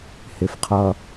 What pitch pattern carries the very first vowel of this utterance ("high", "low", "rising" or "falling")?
low